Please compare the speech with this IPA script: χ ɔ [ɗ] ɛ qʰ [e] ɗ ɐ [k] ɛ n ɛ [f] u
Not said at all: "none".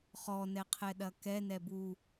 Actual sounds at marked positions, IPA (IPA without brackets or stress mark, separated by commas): n, ɛ, k, b